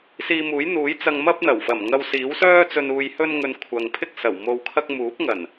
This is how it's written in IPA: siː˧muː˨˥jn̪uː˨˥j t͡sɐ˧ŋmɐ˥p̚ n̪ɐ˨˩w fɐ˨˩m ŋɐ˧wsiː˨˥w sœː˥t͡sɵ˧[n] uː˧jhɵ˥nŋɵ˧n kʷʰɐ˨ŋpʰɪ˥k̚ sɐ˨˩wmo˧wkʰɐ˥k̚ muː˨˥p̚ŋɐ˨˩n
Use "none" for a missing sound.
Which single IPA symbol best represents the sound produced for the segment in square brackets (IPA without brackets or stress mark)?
n